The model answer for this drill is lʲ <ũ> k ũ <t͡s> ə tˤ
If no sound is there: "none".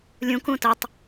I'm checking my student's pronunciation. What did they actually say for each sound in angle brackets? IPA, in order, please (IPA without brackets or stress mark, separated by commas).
ũ, t